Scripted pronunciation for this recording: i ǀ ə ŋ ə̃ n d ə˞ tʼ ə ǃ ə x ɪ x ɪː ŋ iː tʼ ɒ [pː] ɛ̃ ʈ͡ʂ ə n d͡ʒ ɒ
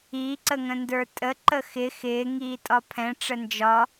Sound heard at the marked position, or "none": pʰ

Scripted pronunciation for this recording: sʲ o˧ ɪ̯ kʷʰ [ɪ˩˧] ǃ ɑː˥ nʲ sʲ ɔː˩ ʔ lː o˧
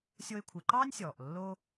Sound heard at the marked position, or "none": ɪ˩˧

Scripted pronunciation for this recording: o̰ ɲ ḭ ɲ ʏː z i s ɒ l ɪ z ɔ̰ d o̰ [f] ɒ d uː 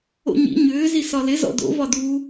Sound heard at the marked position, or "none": v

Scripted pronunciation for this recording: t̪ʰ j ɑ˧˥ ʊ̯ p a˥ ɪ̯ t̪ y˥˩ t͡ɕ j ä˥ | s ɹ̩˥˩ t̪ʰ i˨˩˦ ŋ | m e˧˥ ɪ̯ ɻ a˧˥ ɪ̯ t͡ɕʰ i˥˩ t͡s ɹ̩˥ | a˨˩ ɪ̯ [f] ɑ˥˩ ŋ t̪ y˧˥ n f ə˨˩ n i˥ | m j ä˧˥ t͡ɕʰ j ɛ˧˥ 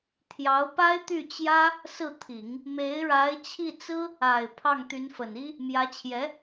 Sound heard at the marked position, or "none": pʰ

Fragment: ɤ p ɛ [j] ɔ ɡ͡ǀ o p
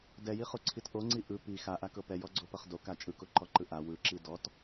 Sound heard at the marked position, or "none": j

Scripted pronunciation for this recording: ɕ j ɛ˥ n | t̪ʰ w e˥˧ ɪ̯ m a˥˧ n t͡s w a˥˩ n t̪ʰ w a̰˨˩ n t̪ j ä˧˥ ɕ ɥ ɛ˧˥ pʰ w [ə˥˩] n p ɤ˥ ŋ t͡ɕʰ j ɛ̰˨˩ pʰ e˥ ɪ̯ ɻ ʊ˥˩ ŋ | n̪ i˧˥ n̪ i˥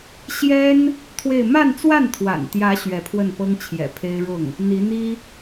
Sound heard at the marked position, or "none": ə˥˩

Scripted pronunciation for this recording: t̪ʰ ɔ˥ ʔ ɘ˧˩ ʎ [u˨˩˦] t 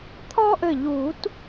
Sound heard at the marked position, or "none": u˨˩˦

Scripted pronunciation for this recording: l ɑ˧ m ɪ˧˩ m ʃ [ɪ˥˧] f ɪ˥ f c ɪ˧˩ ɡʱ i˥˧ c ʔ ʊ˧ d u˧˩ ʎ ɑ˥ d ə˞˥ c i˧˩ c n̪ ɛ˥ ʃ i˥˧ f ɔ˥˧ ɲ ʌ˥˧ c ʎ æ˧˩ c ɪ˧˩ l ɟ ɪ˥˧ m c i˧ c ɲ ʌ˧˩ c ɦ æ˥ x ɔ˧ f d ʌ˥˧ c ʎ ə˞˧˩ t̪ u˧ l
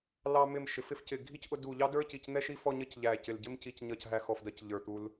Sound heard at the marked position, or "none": ɪ˩˧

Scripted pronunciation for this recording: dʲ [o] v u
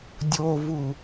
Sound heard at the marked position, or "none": o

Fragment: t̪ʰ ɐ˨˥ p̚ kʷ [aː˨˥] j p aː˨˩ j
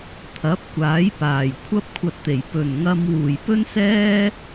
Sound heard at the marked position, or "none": aː˨˥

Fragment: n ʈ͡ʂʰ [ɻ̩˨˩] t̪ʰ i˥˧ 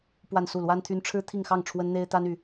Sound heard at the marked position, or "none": ɻ̩˥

